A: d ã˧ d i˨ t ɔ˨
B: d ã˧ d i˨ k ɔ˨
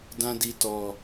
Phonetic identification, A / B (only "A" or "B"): A